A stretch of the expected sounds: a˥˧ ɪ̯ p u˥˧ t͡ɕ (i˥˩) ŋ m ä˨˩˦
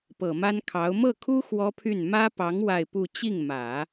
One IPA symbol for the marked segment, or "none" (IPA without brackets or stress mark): i˥˩